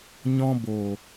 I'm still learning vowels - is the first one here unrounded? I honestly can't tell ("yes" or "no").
no